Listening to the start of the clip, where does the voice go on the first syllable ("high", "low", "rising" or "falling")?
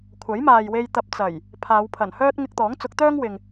rising